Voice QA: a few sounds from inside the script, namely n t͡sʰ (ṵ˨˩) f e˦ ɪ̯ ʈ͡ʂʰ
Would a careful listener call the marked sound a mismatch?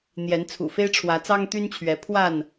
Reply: no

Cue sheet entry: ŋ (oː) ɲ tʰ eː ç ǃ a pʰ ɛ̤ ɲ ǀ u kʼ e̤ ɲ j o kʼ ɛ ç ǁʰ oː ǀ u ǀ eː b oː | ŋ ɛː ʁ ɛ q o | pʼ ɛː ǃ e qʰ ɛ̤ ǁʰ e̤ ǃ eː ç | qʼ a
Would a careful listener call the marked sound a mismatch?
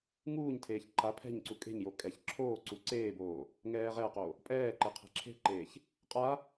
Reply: yes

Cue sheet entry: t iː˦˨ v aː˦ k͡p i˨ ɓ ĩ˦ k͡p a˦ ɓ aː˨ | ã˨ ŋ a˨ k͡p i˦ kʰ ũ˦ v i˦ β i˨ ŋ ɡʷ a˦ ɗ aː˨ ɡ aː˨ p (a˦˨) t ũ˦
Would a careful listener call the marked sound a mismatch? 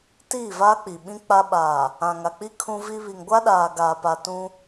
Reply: yes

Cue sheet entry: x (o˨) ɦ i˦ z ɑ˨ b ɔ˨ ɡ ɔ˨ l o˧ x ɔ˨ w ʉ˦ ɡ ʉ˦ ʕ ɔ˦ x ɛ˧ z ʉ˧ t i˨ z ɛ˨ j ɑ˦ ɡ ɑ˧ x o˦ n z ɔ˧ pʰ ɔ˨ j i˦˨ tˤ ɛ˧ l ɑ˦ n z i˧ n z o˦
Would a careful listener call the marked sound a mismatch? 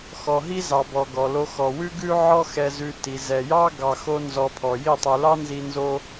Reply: yes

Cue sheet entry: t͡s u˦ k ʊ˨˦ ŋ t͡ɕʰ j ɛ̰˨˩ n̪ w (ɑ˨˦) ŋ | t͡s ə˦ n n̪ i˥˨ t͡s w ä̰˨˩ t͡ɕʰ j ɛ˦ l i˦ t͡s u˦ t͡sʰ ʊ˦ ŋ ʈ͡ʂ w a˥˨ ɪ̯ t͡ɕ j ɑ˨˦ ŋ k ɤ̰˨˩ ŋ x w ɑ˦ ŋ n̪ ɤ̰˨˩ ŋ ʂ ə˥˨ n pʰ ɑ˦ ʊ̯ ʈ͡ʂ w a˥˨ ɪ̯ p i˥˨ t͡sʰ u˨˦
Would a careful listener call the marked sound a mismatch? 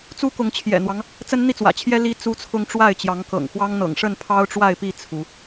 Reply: yes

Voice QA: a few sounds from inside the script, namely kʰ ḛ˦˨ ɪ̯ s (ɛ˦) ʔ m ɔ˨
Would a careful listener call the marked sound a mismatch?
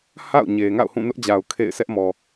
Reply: no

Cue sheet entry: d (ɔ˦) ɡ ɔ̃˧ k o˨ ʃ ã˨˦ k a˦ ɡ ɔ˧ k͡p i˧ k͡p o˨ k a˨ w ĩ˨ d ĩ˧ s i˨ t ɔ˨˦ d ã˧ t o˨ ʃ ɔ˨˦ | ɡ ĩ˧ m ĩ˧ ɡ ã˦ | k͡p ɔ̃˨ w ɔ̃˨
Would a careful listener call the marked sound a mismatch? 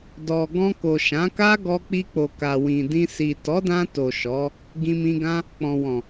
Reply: yes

